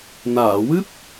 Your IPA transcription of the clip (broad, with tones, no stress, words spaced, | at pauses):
naː˨˩˨wɨ˦˥p̚